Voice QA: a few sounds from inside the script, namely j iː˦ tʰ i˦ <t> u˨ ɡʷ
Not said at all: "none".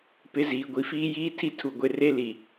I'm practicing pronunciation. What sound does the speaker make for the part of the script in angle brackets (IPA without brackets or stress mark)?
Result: tʰ